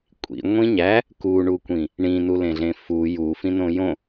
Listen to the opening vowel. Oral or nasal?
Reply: oral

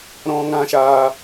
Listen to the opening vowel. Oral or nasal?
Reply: nasal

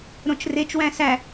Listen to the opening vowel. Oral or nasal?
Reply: nasal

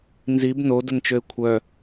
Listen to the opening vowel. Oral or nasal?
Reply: oral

